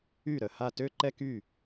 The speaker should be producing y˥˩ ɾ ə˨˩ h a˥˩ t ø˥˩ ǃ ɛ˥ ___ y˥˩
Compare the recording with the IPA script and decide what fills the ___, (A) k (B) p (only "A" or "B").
A